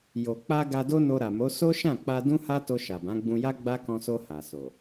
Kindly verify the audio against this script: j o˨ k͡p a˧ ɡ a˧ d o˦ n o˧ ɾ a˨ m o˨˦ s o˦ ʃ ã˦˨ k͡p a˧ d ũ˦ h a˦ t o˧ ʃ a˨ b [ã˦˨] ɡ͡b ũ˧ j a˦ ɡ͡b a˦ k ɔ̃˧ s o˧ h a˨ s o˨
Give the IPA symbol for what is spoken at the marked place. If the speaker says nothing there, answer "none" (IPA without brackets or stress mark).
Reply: ã˨˦